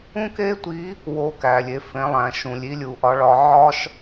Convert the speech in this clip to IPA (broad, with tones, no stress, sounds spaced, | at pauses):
ũ˥ k e˥ tʷ i˧˥ | w o˧ k æ˩ lʲ e˩˧ f ẽ˩˧ lˠ æ̃˩ ʃ ũ˩ lʲ i˧ lʲ u˩ ʔ ɒ˩˧ ɭ ɒ˩˧ ʕ ɒ˥ ʃ